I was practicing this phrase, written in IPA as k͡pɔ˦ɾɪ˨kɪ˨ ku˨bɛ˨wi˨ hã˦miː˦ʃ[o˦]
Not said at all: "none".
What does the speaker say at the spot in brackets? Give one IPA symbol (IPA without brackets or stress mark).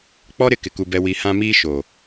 o˨